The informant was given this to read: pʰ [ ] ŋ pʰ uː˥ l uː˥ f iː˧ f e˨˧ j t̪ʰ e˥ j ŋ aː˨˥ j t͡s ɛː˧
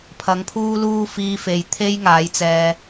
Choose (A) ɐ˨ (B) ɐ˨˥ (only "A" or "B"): B